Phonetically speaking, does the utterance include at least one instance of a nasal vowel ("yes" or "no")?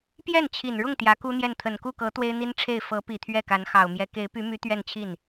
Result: no